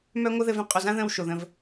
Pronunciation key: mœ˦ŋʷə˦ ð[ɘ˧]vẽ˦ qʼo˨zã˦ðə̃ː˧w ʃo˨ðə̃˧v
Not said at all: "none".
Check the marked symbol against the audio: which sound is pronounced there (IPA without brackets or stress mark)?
ɘ˧